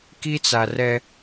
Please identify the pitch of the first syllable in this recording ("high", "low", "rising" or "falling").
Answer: high